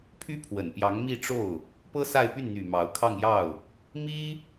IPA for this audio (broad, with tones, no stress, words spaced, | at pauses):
pʰy˥pʰwə˨˩npjɑ˧˥ŋ mi˥˧ʈ͡ʂo˥˩ʊ̯ | pɤ˥ sa˥˧ɪ̯py˥˩nn̪y˨˩ mɑ˧˥ʊ̯ kʰɑ˥˧ŋjɑ˥˩ʊ̯ | mi˥